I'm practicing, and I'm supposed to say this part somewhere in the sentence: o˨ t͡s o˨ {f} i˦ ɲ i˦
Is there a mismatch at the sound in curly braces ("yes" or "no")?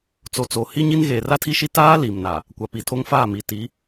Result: yes